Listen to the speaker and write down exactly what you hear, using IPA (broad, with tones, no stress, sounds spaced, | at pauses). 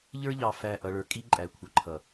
ʎ ə˞˦ ʎ ɑ˨ f æ˦˨ ʔ ʌ˦ ɭ ə˞˦ kʼ i˦ ǃʼ æ˨ kʷʰ ʌ˨ ǃʰ ʌ˨